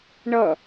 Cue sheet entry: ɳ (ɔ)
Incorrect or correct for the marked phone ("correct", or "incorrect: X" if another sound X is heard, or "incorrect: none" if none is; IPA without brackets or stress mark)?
incorrect: ʌ